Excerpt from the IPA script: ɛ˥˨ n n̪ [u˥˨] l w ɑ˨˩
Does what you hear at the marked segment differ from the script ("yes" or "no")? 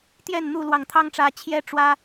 no